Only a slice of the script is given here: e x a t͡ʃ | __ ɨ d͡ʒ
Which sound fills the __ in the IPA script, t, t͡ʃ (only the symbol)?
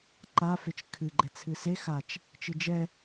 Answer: t͡ʃ